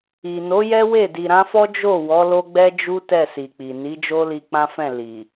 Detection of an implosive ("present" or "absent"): absent